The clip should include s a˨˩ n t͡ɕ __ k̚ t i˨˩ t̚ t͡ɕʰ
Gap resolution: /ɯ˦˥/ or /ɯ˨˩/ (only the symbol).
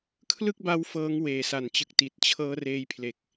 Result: ɯ˨˩